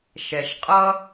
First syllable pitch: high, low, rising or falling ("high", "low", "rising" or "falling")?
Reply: low